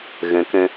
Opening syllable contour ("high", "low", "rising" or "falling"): rising